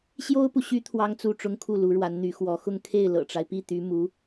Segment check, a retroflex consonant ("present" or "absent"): present